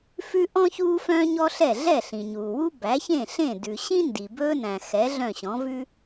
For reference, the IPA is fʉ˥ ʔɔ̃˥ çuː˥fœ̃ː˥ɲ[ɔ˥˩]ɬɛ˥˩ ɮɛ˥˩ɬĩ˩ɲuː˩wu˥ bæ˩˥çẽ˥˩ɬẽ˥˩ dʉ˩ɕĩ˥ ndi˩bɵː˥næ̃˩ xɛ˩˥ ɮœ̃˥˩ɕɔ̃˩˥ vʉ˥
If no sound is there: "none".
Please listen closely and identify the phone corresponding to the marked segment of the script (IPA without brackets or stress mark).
ɔ˥